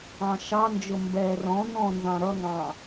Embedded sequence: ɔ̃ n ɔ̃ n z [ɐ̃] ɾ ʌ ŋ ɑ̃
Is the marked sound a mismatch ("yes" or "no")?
yes